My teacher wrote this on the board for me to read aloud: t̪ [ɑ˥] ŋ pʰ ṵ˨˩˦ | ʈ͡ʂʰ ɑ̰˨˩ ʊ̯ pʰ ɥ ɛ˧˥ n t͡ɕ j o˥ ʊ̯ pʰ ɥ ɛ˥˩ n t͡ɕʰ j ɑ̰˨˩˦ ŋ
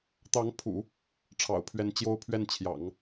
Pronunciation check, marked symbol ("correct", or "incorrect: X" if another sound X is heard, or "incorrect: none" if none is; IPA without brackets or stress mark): incorrect: ɑ˧˥